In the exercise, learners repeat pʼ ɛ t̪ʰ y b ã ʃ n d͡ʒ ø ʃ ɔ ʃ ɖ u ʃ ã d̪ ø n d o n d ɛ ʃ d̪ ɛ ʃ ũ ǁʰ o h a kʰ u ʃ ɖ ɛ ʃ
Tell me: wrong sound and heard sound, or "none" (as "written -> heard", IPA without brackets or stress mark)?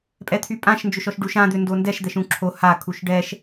b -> pʼ